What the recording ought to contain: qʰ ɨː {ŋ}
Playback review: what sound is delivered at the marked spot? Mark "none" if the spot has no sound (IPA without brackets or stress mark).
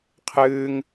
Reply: ŋ